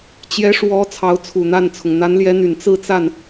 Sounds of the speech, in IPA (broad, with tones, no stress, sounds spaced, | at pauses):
t͡ɕ j ɛ˧˥ ʂ w ɔ˧˥ t͡sʰ ɑ˧˥ ʊ̯ t͡sʰ u˨˩ n̪ a˥˩ n t͡sʰ ʊ˩ ŋ n̪ a˧˥ n l j ɛ˧˥ n̪ y˨˩ n t͡s ɹ̩˥˧ t͡s a˥˩ n